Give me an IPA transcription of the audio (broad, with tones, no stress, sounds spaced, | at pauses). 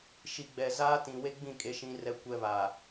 ʃ i˨ ɡ͡b ɛ˨ z aː˦ t ĩ˨ w e˦ ɡ͡b ĩ˦˨ kʼ e˦ ʃ ĩ˦ r ɛ˦ kʷ ɛ˦ β a˨